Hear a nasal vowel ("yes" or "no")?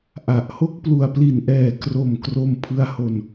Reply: no